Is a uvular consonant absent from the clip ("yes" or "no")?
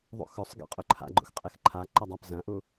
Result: no